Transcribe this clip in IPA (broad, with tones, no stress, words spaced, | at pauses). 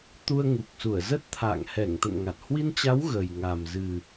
t̪u˧ə̯ŋu˨˩k̚su˧˩ə̯ zə˦˥t̚t̪ʰa̰ː˧˨ŋ hɛ˧˩ŋt̪ə̰˧˨nŋa˨˩t̚ hwi˧nt͡ɕa˨˦w ɣə˨˩j ŋa˨˩mzɨ˨˩